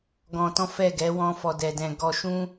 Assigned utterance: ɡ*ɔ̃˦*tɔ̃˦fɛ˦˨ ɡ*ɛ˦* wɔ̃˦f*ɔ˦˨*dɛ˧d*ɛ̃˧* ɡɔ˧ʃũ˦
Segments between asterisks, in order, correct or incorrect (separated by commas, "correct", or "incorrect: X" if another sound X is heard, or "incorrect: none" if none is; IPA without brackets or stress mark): incorrect: ɔ̃˧, incorrect: ɛ˨˦, incorrect: ɔ˧, correct